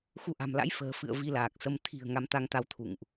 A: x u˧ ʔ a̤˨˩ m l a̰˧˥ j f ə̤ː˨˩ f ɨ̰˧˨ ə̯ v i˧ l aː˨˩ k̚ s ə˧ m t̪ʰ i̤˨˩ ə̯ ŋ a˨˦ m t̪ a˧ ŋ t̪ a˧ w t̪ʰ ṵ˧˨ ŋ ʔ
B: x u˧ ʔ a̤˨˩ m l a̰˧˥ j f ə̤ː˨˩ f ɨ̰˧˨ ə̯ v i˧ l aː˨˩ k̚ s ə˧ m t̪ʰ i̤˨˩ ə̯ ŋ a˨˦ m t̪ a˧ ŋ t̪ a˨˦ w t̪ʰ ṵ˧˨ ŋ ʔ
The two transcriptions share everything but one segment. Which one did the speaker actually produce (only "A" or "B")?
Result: B